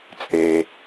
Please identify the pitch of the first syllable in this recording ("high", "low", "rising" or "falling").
low